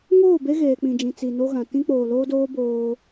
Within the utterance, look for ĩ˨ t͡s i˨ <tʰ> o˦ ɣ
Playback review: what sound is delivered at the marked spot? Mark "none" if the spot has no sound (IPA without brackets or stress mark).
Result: n